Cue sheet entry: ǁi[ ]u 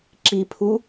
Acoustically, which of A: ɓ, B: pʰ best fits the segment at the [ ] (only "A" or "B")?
B